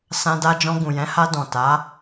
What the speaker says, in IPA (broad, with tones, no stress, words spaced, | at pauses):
sã˧da˧d͡ʒɔ̃˧ ɡũ˨jɛ̃˨˦ha˧ dɔ̃˨ ta˨˦